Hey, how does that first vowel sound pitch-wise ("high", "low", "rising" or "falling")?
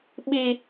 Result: high